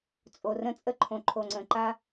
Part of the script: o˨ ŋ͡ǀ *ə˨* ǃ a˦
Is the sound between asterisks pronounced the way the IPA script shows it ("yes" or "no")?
no